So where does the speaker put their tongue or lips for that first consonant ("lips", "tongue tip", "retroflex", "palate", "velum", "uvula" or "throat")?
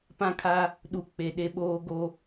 lips